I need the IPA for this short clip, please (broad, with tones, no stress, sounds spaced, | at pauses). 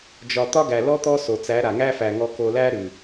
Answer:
d͡ʒ ɒ˧ t̪ ɒ˦ ɡ æ˨ l ɔ˦ t̪ ɔ˦ s o˨ t͡s æ˨˦ ɾ a˨ ŋ æ˦ f æ˨ ŋ ɔ˧ k o˧ l æ˦ ɾ ʉ˨